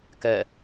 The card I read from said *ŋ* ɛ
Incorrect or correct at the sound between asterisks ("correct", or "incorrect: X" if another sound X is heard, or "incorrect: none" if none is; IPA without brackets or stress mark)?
incorrect: k